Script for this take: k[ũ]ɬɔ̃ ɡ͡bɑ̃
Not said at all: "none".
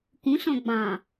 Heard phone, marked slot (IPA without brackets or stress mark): ũ